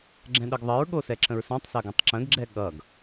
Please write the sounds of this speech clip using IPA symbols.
ɡ͡ǁ ɛ̃ ɗ ə ɡ ðˤ ə ɹ ɠ o s ɛ ǁ ə̃ ɹ s ɑ̃ tˤ s ɐ ɡ ɐ̃ tˤ ǁ ə̃ ɡ ɡ͡ǁ ɛ ɠ ʌ ɡ

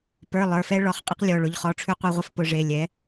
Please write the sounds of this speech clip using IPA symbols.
p ə˞˩˧˩ lˠ ə˞˩˧˩ f ɛ˥ ɭ ɔ˩˥ χ qʼ e˥ q lʲ ɔ˩˧˩ ɭ ʊ˩˧˩ ʎ χ ɔ˩˧˩ ʈ͡ʂʰ ʉ˧ qʷ ɛ˥˧ ʁʷ e˥ f p ʊ˧ ʐ e˩˧˩ lʲ ɛ˩˥

